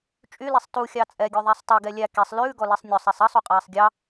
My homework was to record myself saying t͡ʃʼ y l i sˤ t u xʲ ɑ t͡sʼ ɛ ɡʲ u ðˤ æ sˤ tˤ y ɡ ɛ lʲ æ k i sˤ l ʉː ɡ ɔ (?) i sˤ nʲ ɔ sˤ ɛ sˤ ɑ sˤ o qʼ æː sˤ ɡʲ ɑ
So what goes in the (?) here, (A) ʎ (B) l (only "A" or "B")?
B